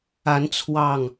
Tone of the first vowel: rising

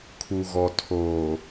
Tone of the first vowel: low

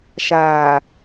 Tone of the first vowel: low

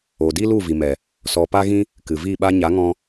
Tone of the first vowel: low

